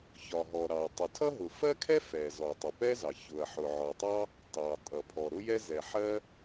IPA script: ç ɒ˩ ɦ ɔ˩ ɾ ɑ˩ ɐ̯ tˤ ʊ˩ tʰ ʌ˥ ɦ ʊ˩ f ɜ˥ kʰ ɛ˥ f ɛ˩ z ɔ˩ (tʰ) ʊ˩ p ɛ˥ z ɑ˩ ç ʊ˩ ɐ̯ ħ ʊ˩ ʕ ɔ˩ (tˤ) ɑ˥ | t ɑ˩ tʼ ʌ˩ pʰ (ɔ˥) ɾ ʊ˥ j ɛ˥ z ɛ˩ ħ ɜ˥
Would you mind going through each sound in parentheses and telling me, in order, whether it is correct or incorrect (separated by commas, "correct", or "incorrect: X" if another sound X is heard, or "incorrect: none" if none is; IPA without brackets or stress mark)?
incorrect: tˤ, correct, incorrect: ɔ˩